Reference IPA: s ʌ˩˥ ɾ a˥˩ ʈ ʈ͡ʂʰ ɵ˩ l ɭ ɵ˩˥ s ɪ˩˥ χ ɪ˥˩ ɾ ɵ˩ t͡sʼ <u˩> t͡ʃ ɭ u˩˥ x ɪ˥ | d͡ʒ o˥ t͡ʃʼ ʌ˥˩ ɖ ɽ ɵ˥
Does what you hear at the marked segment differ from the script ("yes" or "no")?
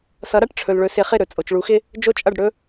yes